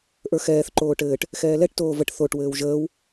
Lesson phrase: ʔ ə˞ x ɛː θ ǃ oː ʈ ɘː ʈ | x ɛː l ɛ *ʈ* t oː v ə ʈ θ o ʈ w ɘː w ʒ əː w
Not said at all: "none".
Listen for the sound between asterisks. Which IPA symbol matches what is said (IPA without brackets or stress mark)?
ʈ